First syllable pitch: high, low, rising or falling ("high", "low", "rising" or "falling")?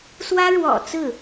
high